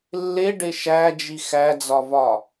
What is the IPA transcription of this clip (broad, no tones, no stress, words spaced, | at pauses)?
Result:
lːeɖe ʃæd͡ʒi xæd͡zɒvɒ